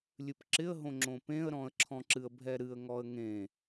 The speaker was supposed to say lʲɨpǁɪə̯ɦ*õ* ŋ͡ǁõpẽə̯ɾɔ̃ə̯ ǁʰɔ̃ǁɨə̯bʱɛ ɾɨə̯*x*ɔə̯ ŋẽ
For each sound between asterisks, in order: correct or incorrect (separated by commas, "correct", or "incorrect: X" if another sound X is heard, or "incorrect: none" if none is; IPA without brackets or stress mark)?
correct, incorrect: ŋ